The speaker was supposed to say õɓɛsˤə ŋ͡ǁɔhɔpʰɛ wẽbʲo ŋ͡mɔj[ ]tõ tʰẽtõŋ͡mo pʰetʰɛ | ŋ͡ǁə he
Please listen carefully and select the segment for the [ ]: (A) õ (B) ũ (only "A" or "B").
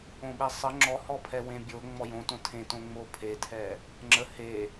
A